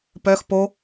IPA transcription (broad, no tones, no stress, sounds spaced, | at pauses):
p œ x p o